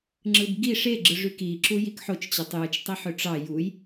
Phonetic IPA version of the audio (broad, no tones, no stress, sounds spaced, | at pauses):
ŋ͡ǁ ɯ b ɡ i ʂ e ɡ͡ǁ ɯ ʐ y k i ǁ u j i k ħ o t͡ʃ t͡ɕ ɯ tˤ j ɯ t͡ʃ tˤ i ħ ø ʈ͡ʂ ɑ j u j